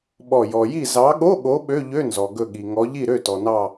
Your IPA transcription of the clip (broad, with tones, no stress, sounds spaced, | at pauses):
ɓ ɔ˧˩ j ɔ˩ j i˧˩ z ɑ˨˦ ɠ o˧˥˧ ɠ o˨˦ ɓ ø˧˥˧ ʎ ø˧˥˧ n z ɔ˩ ɡ ɵ˧˩ ɠ i˩ ŋ ɔ˨˦ ʎ i˥˩ ɾ ø˥˩ t ɔ˩ n ɑ˧˩